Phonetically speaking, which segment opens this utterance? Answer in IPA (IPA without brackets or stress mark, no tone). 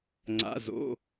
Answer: ŋ͡ǀ